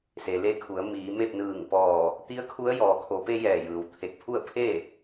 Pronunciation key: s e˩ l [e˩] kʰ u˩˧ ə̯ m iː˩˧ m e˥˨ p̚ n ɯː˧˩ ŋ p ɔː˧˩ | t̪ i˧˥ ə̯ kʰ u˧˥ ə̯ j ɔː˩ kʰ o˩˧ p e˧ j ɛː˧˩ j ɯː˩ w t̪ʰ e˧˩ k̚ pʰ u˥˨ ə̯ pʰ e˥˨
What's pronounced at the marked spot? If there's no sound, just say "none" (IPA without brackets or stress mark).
e˧